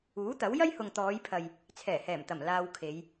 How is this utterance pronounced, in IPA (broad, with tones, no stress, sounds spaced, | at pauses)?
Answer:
uː˨˥ t̪ ɐ˨˥ w j ɐ˥ j h ʊ˨ ŋ t̪ ɔː˨˧ j pʰ ɐ˨ j | t͡sʰ ɛː˨˩ h ɛː˨˩ m t̪ ɐ˨˩ m l aː˨ w kʰ e˨˧ j